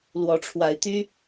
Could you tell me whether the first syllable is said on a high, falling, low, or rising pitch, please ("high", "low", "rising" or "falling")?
rising